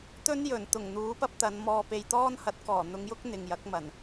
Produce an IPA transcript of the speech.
t̪ ɵ˥ n j ɵ˨˩ n t̪ ʊ˨˩ ŋ n̪ uː˨˥ p ɐ˥ p̚ t̪ ɐ˨˧ n m ɔː˨ p e˨ j t̪ ɔː˥ n h ɐ˨˥ t̚ k ɔː˨˩ n̪ ʊ˨˧ ŋ j ʊ˥ k̚ n̪ ɪ˨ ŋ j ɐ˨˥ k̚ m ɐ˨˩ n

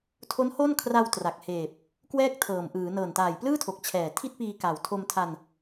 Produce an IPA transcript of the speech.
tʰ o˦˥ n h o˥˩ n kʰ r a˧ w t r a˨˩ k̚ h eː˨˩ p̚ | k w ɛː˥˩ k̚ tʰ ɤː˨˩ m ʔ ɯː˩˦ n ɤː˨˩ n t aː˨˩ j p l ɯː˥˩ tʰ o˨˩ k̚ t͡ɕʰ ɛː˨˩ tʰ i˥˩ t̚ p iː˧ k a˨˩ w tʰ o˧ m tʰ a˧ n

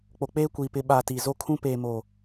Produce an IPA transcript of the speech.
k͡p o˨ k͡p eː˦ kʷ iː˨ p ɪ˨ ɓ aː˨ t i˨ z o˦ kʰ ũ˦ p eː˨ m o˨

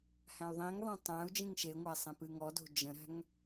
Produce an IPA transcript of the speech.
h æ̃ y̯ ðˤ ĩ ŋ ðˤ ɛ̃ tˤ æ̃ u̯ d͡ʒ ĩ ŋ ʃ e ŋʷ æ sˤ ẽ p ɨ ŋ ɔ d o̤ d͡ʒ ə̃ ɾ æ̤ ŋ

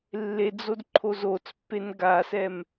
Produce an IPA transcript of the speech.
lː e d͡z o d ǃʰ o z o t͡s pː e n ɡ a s ɛ m

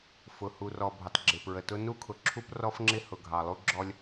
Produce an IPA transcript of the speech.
f ʊ˨ h u˨ r ɔ˨ bʱ ə˨ tˤ ɡ͡ǁ ɪ˨ p ɹ ə˨ t ʊ˦ n u˦ kʰ ʊ˨ ǁʰ u˦ p r ɔ˦ f ŋ͡ǁ ɪ˦ h ʊ˨ ɡʱ ɑ˨ lˠ u˦ ɡ͡ǁ ɔ˦ lʲ

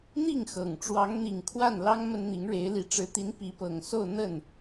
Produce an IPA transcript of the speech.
n̪ i˥˩ ŋ x ɤ˨˩ ŋ ʈ͡ʂ w ɑ˧˥ ŋ n̪ i˨˩ ŋ kʰ w a˥˩ n l ɑ˥ ŋ m ə˥ n n̪ i˧˥ ŋ ɻ e˧˥ ɪ̯ l i˨˩ ʈ͡ʂ ɻ̩˧˥ t̪ i˧˥ n p i˧˥ p ɤ˨˩ ŋ s o˥˧ ʊ̯ n̪ ə˥˩ n

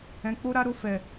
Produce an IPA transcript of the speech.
ɛ̃˦ k͡p o˦ ɾ a˦ ɾ o˦ f ɛ˧

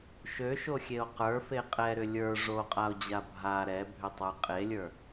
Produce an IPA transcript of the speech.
ʃ ø ʃ o xʲ e o̯ q ə˞ f e qʼ ɛ ɾ ʏ lʲ ə˞ ʐ o qʼ a o̯ d͡ʑ a bʱ a ɾ ɛ bʱ ʏ tˤ ə˞ qʼ e lʲ ə˞

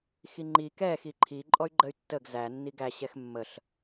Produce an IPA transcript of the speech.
x i ŋ͡ǃ i k ɛ x i ǃʰ i ǃʼ ɔ y̯ ɡ͡ǃ ə y̯ tː ə ɡ z æ nː i ɡ æ ɕ ɛ x mː ə ɬ

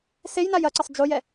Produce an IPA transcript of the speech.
s e j n a j ɐ ǀ ɘ sˤ d͡ʒ o j ɛ

